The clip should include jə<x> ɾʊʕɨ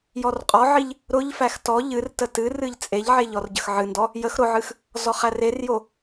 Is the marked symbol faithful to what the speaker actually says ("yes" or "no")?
yes